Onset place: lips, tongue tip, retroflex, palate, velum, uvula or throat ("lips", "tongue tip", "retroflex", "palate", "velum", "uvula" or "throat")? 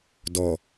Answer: tongue tip